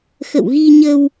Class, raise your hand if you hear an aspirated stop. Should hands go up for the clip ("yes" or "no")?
no